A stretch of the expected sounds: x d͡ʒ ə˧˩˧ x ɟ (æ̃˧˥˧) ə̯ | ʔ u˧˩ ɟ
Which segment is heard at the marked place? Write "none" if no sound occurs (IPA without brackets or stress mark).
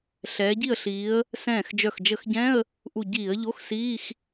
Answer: ɛ̃˧˥˧